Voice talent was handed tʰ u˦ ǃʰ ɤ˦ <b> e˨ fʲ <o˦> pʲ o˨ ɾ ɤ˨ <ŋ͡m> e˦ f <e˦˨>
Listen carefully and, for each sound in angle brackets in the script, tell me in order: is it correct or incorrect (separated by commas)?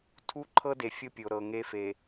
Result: incorrect, correct, incorrect, incorrect